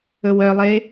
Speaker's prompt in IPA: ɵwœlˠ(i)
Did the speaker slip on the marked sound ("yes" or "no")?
yes